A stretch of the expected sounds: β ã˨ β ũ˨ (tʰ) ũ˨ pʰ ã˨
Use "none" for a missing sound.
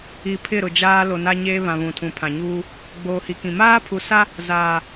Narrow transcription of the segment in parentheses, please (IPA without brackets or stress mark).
tʰ